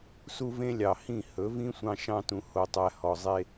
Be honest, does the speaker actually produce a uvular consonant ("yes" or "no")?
no